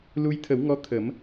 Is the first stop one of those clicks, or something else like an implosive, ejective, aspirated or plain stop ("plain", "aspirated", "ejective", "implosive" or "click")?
aspirated